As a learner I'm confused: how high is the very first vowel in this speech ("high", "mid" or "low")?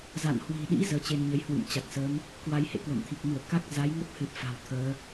low